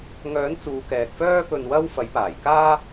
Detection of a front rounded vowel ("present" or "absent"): present